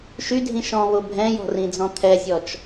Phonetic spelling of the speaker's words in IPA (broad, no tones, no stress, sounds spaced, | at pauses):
ʃ y dʱ ĩ ʃ ɔ̃ β o bʱ ɛ̃ j ɔ̤ r ĩ d͡z ɔ̃ t̪ʰ ɛ zʲ ɔ t͡ʃ